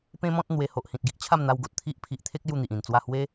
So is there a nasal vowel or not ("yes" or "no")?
yes